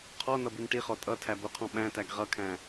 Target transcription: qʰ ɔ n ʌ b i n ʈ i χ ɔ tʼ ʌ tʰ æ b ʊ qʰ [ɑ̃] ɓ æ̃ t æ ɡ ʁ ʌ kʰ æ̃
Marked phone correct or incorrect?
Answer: incorrect